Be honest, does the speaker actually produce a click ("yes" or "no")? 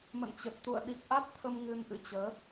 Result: no